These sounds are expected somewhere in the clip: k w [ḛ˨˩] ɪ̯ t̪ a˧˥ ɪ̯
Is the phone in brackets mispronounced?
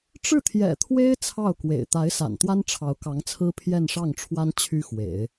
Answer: no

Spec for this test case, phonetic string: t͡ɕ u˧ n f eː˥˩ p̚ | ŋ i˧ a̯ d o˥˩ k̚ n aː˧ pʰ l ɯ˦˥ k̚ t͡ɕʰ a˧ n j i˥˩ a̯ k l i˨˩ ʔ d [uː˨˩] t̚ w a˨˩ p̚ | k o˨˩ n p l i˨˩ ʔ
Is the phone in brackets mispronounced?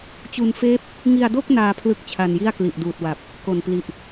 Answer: no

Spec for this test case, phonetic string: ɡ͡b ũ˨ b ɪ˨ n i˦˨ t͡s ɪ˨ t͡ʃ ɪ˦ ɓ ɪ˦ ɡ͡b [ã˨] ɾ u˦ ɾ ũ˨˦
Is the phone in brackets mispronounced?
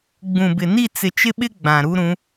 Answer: no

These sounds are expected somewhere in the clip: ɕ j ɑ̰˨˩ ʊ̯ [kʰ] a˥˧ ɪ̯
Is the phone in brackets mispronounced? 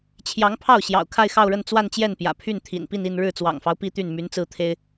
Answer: no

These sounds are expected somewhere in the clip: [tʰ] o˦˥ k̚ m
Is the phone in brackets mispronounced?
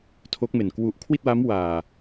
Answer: no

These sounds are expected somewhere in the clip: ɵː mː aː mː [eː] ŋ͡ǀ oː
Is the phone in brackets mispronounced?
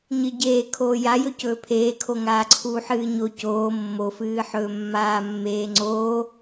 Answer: no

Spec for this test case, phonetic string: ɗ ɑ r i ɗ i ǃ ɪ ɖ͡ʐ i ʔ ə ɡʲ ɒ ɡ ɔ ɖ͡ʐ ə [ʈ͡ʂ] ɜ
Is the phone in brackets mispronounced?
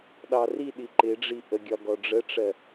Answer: no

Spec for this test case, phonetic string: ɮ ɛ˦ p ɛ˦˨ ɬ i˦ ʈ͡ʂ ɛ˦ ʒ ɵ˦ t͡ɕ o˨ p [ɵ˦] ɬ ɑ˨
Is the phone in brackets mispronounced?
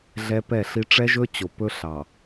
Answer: no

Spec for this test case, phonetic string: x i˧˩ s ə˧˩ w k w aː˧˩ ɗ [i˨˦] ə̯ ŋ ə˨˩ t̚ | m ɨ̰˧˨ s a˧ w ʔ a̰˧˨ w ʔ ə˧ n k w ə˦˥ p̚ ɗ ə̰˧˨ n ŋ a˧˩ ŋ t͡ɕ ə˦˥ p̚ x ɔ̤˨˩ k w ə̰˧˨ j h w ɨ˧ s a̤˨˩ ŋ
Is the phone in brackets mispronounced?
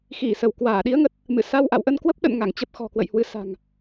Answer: no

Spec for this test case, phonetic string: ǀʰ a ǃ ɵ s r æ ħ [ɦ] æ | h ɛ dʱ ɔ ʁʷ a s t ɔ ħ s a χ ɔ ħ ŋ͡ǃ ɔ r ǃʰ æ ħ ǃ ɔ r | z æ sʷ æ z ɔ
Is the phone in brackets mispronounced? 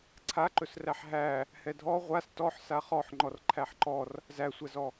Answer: no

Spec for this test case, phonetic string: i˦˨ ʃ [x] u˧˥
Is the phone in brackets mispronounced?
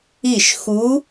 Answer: no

